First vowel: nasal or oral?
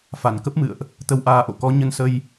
oral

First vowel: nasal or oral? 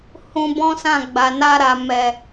nasal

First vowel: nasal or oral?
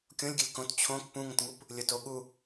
nasal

